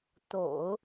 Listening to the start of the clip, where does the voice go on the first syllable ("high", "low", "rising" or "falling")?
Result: low